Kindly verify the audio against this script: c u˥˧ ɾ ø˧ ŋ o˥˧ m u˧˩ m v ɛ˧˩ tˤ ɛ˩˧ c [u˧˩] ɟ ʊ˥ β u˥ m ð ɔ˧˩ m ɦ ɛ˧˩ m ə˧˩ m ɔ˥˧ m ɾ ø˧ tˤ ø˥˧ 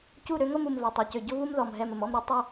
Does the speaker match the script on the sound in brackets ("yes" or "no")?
no